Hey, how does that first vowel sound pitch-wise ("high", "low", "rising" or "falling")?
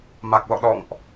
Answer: low